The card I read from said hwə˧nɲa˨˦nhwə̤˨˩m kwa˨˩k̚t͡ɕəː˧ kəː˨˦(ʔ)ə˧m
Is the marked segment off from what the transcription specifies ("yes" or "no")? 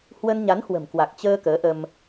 no